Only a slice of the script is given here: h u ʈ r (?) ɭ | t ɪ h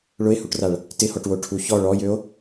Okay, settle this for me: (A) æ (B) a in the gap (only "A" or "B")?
B